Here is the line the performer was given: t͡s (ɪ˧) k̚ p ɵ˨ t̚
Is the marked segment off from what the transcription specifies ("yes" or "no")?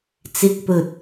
no